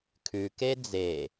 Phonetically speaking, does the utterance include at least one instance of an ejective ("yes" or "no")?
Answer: no